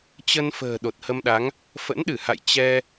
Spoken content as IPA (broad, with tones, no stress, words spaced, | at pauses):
t͡ɕə˧n fə̤ː˨˩ ɗo˨˩t̚hə˧mɗa˨˦ŋ | fə̰˧˥nɗɨ˧˩ha̰˧˨j t͡ɕɛ˧